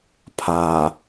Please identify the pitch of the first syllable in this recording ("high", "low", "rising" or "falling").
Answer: low